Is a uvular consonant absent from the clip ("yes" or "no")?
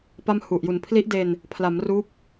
yes